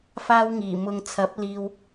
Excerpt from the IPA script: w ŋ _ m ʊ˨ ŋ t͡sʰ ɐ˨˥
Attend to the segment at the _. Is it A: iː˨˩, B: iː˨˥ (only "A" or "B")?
A